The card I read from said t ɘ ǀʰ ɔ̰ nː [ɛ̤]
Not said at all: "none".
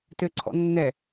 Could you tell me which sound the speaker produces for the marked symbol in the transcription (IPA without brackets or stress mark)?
ɛ